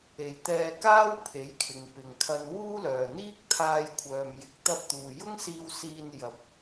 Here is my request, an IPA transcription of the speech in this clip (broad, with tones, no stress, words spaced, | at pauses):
e˨jt̪ɛː˧kaː˥w pʰe˨˥jkʰɪ˨ŋ pɪ˨ŋkʰɐ˧n wuː˥lœː˨n̪iː˥k̚ t̪ʰaː˧jkʷʰœː˨mjɪ˨˥k̚ t̪ɐ˧p̚t̪uː˨jʊ˥ŋsiː˧w siː˧njɐ˨p̚